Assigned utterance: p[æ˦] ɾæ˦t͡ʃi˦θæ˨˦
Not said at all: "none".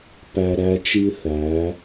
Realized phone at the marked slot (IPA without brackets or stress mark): æ˦